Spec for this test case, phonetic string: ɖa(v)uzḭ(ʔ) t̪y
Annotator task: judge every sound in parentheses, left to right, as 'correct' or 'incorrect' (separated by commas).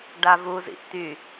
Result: correct, correct